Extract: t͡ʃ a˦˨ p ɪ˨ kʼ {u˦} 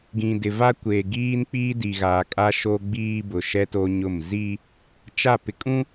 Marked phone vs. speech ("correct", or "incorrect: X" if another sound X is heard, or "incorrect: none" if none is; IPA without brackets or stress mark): incorrect: ũ˦